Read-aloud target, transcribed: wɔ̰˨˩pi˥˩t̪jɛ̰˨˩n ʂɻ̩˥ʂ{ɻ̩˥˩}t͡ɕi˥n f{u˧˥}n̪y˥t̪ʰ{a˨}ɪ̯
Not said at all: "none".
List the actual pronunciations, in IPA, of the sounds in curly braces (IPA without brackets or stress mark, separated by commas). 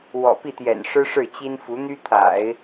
ɻ̩˥˩, u˧˥, a̰˨˩˦